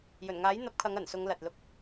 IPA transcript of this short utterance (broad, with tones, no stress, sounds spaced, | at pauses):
j ɵ˨˩ n ŋ aː˨˥ j n̪ ɐ˧ p̚ kʰ ɐ˨˧ ŋ ɐ˨˩ n s ʊ˨˧ ŋ l ɐ˨ t̚ l ʊ˧ k̚